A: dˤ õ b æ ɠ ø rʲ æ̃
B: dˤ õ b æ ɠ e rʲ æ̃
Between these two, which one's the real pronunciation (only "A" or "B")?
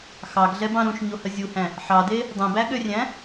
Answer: A